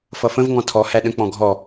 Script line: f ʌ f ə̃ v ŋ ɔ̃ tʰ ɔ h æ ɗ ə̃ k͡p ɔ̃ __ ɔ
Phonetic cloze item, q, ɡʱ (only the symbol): ɡʱ